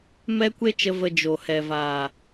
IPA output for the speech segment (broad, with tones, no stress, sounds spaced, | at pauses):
m ɛ˦ kʷ e˦ t͡ʃ ə˧ v ə˧ d͡ʒ o˨ h ɛ˨ v aː˨